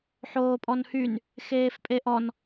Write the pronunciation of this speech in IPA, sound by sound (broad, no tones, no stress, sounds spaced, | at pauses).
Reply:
ħ oː pʼ ɔ n h y n | x eː f pʼ e ʔ ɔ n